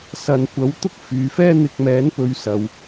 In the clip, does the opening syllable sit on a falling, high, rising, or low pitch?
low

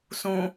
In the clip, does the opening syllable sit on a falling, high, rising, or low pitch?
low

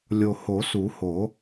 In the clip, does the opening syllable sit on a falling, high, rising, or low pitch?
low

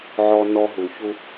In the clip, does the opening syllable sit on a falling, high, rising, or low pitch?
high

